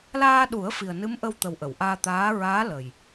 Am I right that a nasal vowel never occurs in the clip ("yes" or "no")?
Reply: yes